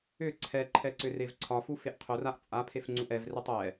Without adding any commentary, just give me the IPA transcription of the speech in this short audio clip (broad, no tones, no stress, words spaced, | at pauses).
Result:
ʏ ǀʰɛǃʰɛ ǀʏrevǀʰɒfu feʔqʰʊraʔ t͡sʼapʰef ŋ͡ǀuʔɛvretˤ ɛ